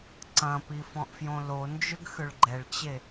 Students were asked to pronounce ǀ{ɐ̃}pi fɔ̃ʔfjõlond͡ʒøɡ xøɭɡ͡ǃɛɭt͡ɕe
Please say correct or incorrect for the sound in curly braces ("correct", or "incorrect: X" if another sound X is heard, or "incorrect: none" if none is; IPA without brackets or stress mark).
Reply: correct